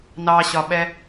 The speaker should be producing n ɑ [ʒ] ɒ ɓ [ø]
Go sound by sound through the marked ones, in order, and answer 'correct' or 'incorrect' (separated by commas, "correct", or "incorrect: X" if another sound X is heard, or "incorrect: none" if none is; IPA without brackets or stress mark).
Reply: incorrect: ɕ, incorrect: ɛ